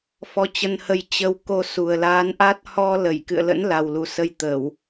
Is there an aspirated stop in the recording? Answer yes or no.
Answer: no